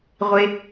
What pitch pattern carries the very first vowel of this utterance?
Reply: low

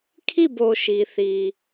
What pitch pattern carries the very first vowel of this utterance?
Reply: falling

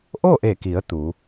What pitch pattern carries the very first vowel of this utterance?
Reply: falling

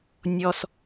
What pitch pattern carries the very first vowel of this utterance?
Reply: high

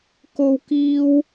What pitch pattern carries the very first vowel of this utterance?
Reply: high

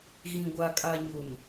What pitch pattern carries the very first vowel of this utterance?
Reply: low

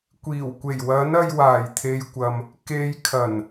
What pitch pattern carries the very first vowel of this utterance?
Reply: low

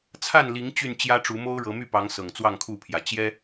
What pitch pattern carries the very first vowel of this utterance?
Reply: falling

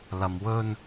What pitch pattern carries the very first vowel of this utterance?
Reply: low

